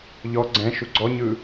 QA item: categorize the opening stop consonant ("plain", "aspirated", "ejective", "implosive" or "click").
click